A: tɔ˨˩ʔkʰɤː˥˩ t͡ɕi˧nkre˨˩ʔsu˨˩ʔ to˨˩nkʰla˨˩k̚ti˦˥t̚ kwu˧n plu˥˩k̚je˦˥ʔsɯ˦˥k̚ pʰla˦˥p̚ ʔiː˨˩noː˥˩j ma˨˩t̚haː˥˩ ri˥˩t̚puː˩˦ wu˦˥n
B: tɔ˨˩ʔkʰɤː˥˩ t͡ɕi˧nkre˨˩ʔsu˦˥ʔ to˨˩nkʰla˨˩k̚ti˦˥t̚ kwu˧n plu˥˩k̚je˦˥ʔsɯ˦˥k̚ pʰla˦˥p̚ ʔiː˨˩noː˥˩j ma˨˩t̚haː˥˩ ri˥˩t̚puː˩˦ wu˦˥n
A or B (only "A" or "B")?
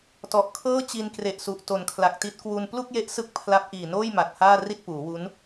A